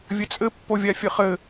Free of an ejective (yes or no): no